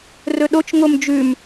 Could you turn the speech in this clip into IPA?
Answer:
r ɵ ɗ o t͡ʃ ŋ o m d͡ʒ ʉ m

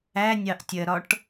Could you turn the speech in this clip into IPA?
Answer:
æ nʲ ɑ ʔ tʲ ɜ ɾ ɒ ʈ

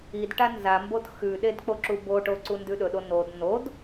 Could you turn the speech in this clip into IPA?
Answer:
i d ʈ a n z a m b o t x ʉ ɗ e d k͡p o ǁ u b o ʈ o ǀ u n d ʉ ɗ ɵ ɗ o n o d n o d

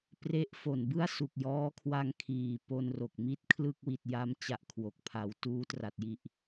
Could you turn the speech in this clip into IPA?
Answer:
p r e˦˥ ʔ f o˨˩ n b ɯ˥˩ a̯ s u˨˩ k̚ j ɔː˦˥ kʰ w a˧ ŋ kʰ iː˨˩ p o˧ n r o˨˩ k̚ m i˥˩ t̚ kʰ l ɯ˥˩ k̚ w i˨˩ t̚ j a˧ m t͡ɕ a˥˩ ʔ kʰ w o˨˩ k̚ pʰ a˩˦ w t uː˦˥ t r a˨˩ t̚ j i˨˩ ʔ

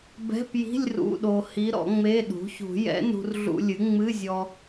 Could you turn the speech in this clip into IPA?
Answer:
b ɛ̤˧˥˧ p j i̤˧˥˧ lʲ r ṵ˧˥˧ ɗ o˧ h i˧˥ ɾ ɔ̰˩˥ ŋ͡m e˧˥˧ ɗ ṳ˩˥ ç ṳ˨˩˦ j ɛ̰˧˥ n ṳ˧ r ɮ ṵ˧ lʲ ɨ˩˥ ŋ͡m ɨ˧˥˧ zʲ ɔ˧

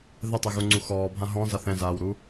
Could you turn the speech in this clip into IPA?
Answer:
ð ɛ tˤ ɛ ɣ u ŋ͡ǀ u x ɔː bʱ ã ɦ ɔ̃ z a θ ɛ̃ z aː w ɾ u

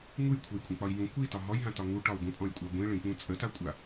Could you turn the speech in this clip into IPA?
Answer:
ŋ u j kʷʰ ə˞ j kʷʼ ɛ̃ k͡p ɒ i̯ j ũ kʷ i t ɒ ɦ ɔ j ɦ ã t ɒ ŋ u ʈ ɒ u̯ ɡʷ ə̃ pʼ ɔ̃ j kʷʼ a ɡʷ ĩ ɭ ĩ k͡p ũ t͡sʼ ə t a kʷʼ a

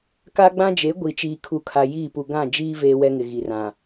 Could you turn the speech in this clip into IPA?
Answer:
k a˦ ɡ͡b ã˦ d͡ʒ e˨˦ ɡʷ i˨ t͡ʃ iː˨ kʰ u˨ kʰ a˨ j iː˦˨ p u˨ ɡ ã˦˨ d͡ʒ iː˦ v eː˦ w ɛ˦ ŋ ɪ˨ ɣ i˨ r ã˨

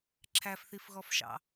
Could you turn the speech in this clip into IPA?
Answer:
ǁʰ æ f θ i f ɣ ɔ f ʃ ɑ̰

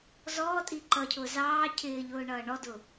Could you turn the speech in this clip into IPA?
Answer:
z ɔː tʼ i ǃ ʌ cʰ ʊː z ɑː cʰ ɪː ʎ ʊː ɳ ʌː ɳ ɔ d ʊ

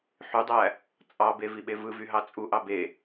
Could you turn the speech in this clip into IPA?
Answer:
ħ y dˤ æ | t͡sʼ ɑ b e v i ɓ e v ɯ v y ɦ ɑ t͡sʼ u ʔ ɑ b e

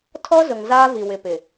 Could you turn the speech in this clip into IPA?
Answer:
tʰ ɔ˦ z ʊ˨ ŋ z aː˦ v i˨ w ɪ˨ p ɪ˨

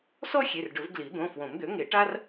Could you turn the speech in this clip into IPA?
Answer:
s ɔ˥ xʲ e˩˧˩ r ɖ ɵ˨˩˦ v ɡ l i˨˩˦ d̪ õ˩˧˩ f w õ˨˩˦ m d̪ ø˩˥ ŋ e˨˩˦ ʈ a˥ r

